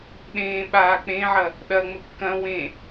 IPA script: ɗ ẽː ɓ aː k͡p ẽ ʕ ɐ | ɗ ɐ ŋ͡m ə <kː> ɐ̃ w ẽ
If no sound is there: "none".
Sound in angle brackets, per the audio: kː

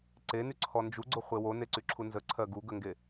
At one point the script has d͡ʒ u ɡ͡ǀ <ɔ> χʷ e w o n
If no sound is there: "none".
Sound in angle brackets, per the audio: o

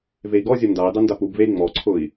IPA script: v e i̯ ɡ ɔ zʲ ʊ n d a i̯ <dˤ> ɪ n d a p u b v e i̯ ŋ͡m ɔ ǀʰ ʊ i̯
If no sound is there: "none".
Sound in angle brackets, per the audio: dˤ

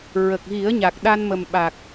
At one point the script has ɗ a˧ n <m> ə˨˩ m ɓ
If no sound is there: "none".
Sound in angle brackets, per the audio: m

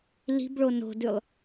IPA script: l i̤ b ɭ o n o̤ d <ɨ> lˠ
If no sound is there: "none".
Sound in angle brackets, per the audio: ʉ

